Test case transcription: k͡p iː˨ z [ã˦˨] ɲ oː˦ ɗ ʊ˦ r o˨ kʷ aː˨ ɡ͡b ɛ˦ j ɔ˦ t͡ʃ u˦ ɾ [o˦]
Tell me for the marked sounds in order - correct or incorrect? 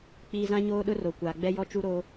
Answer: incorrect, correct

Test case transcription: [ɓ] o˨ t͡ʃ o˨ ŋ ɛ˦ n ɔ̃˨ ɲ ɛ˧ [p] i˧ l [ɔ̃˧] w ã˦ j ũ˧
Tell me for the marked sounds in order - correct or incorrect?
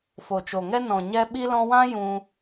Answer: incorrect, incorrect, correct

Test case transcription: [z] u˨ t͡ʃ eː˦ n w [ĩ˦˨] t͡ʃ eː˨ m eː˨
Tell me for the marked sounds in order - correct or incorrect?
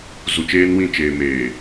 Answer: correct, correct

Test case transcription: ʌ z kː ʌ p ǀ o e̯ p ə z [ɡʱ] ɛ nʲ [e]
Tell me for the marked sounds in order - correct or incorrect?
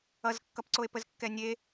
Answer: incorrect, correct

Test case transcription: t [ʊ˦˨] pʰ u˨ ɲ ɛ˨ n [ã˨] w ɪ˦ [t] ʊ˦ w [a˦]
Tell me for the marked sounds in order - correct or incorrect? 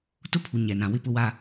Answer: incorrect, correct, incorrect, correct

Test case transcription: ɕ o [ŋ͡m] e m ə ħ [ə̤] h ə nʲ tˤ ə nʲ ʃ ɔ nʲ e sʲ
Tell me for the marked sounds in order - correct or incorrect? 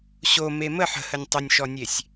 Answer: incorrect, correct

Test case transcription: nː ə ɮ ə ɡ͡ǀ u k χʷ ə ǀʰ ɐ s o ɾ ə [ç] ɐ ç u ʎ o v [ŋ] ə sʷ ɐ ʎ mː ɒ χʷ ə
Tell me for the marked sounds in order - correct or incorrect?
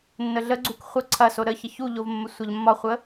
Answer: correct, incorrect

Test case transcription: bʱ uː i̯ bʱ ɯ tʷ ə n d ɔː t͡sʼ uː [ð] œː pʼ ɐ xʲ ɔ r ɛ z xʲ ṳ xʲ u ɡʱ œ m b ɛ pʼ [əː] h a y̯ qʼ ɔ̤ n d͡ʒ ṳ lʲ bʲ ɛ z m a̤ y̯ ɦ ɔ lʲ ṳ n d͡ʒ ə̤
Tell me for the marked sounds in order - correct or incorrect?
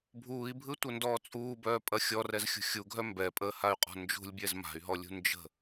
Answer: incorrect, correct

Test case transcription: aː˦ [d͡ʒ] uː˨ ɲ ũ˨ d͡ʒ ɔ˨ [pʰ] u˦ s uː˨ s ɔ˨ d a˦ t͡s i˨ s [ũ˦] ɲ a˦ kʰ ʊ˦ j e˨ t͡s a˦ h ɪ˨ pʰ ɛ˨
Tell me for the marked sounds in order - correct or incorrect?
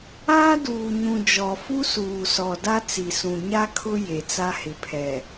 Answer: incorrect, incorrect, incorrect

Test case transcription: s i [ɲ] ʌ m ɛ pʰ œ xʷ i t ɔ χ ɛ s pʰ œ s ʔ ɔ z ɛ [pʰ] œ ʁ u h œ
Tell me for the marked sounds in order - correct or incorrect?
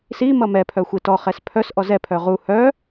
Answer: incorrect, correct

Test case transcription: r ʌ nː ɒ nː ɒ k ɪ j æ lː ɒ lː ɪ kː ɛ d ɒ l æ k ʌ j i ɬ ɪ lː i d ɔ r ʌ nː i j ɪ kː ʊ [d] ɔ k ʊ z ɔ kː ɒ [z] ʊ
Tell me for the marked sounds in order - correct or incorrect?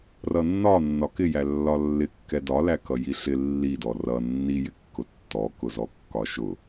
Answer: incorrect, incorrect

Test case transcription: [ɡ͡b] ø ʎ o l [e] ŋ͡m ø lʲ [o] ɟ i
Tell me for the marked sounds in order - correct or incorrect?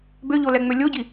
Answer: incorrect, incorrect, correct

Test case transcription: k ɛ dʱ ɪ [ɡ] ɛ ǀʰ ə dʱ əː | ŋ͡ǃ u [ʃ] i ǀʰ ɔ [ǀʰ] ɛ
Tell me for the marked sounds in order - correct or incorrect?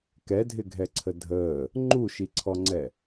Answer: incorrect, correct, incorrect

